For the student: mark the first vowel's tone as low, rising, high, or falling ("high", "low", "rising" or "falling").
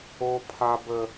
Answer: high